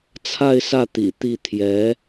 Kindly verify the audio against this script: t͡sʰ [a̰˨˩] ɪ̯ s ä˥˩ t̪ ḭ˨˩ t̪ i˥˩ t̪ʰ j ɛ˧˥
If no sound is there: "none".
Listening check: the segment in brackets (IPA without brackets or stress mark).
a˥˧